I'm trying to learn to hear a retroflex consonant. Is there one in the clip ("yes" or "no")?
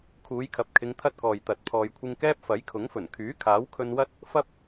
no